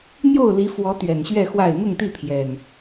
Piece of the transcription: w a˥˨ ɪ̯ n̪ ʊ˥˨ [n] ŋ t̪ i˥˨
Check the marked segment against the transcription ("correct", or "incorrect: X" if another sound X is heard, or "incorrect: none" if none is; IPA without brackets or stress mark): incorrect: none